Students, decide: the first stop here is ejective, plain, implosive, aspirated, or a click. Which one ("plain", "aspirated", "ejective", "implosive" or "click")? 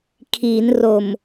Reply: aspirated